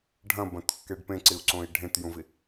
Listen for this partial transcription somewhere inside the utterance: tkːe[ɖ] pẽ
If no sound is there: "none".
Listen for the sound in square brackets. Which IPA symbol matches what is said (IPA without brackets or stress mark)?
ɖ